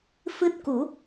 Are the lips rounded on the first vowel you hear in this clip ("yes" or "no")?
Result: no